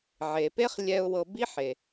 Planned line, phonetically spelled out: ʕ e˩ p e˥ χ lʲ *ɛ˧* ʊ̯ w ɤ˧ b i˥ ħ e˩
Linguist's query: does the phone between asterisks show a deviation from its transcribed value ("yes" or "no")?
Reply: no